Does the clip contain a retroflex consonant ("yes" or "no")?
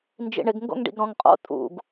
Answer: yes